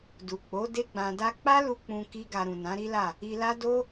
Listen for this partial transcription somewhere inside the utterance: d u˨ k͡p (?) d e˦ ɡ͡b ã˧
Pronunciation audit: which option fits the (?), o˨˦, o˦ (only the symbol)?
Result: o˨˦